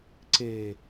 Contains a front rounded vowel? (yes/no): no